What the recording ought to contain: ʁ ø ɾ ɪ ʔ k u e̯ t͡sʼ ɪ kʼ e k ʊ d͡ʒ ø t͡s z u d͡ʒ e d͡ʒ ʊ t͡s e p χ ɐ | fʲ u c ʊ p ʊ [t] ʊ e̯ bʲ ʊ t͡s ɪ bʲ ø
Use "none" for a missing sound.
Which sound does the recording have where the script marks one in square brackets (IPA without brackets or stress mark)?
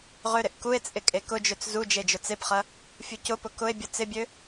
k